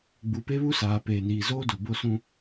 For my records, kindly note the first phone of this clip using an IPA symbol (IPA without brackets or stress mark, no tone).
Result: ɡ͡b